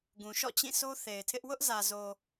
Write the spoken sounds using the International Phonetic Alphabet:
ɡ ũ˨ ʃ ɔ̰˦˨ t͡ɕ ĩ˦˨ s o˦ θ e˨ ɪ̯ tʰ ɪ˦ ʔ w ʊ˦ ʔ z ä˨ z o˨

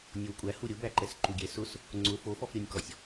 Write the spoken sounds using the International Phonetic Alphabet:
nʲ o w kʷʼ æ h u ɾʲ ʊ b æ ǃ ɛ s ǃ u ɡʲ ɛ s ʊ s | ŋ͡ǀ ʊ f o f ɔ f ɾʲ o nʲ k ɔ sʲ

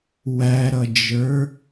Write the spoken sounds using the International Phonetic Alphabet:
w æ ɾ ʌ d͡ʒ ə˞

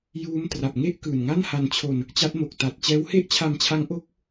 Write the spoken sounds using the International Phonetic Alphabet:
j uː˦˥ m t r a˨˩ p̚ ŋ e˥˩ ʔ k ɯː˨˩ n ŋ a˥˩ n h a˧ n t͡ɕʰ o˧ n | t͡ɕ a˦˥ t̚ m o˨˩ k̚ t a˨˩ t̚ t͡ɕ ɛː˦˥ w h e˥˩ ʔ t͡ɕʰ a˧ m t͡ɕʰ a˦˥ ŋ ʔ o˦˥ k̚

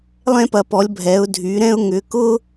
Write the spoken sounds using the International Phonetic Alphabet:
lˠ ɛ̃˥ p ɐ˨˦ p ɔ˨˦ lʲ bʱ ɛ˨˦ ʊ̯ dʱ y˨˦ ɾ ɛ̃˥ ʊ̯ ŋ ʏ˨˦ k ʊ˥

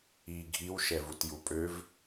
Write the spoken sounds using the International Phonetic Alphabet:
iː ɡʱ i w ʃ ɛ v u t j u pʼ ø v

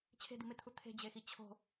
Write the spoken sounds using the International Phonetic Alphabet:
t͡ɕʰ e̤ d̪ i m ɪ t̪ʰ u t̪ʰ e̤ d͡ʑ e x i t͡ɕʰ o̤

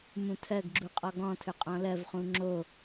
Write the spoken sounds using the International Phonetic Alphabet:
m ũ tʰ ɜ ɡ ɡ͡ǁ u qʼ ɔ ɡ ɔ̃ tʰ ɵ qʼ ɔ̃ l ɜ v χ ũ ŋ͡ǁ o

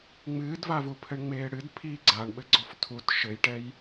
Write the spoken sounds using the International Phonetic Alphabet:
ŋ͡m ɨː d v a v u pʰ ɘ ɳ ŋ͡m eː ɽ ɨ d pʰ i ɡ͡ǀ a ɳ ɓ ɘ ɡ͡ǀ ɔ f tʰ u t ʃ ɘ j ʈ ɛ j

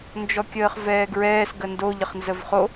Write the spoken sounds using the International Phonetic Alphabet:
n d͡ʒ ɔ kʲ əː χ v ɛː ɡ ɹ ɛː s ɡ ə n d o ʎ ə χ n z ə v χ o

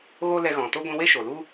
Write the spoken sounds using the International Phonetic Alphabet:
ɣ o˦ l ɛ˧ ɣ ɔ̃˨ t o˦ ɡʷ ĩ˦ w e˦ ʃ o˨ l u˦

